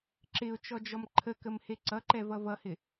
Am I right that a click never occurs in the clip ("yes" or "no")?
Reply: no